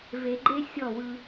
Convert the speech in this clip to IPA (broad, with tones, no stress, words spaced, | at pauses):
ve˨ɡ͡ǃe˦ sʲɔ˦˨wɯ˧